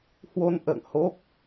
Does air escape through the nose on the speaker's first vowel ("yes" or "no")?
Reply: no